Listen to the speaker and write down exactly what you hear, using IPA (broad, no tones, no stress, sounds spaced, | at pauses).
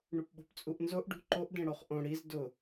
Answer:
ɳ u p ɓ o̤ p t͡sʼ u ʔ n z o ʔ ɖ ṳ ǃ o ʔ d ẽ ɽ o χ ʔ õ ɽ i z d ʊ